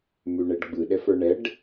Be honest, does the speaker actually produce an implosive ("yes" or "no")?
yes